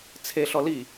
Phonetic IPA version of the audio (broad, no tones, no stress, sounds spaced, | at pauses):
t͡sʰ e ɬ ɔ l i